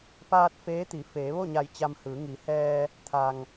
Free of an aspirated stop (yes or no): no